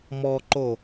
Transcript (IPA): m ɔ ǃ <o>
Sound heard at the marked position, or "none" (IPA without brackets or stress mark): o